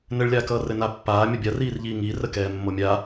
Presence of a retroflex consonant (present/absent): present